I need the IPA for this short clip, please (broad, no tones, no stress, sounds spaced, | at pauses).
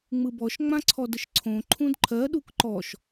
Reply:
ŋ͡m ɯ b ɔ ʃ ŋ͡m ã ǀʰ ɔ d ə ʃ ǀʰ õ ǃʰ ũ d ǃʰ ɜ ɗ u k ǃ ɔ ʃ